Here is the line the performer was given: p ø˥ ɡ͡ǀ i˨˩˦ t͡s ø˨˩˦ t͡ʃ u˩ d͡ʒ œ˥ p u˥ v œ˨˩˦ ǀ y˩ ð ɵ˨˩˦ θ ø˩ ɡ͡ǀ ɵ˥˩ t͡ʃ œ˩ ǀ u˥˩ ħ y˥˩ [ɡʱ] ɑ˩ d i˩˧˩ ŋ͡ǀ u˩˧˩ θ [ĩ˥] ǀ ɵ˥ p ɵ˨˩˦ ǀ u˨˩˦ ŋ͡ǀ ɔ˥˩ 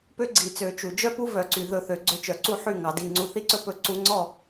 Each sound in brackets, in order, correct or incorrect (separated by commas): incorrect, incorrect